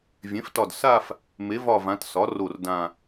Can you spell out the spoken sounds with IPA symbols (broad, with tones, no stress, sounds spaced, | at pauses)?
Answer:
vʲ ẽ˩˥ f t ɒ˧˩ d s a˥˧ f | m e˩˥ v ɒ˧˩ v ã˩˧ t s ɒ˩˥ r o˧˩ r d ã˧˩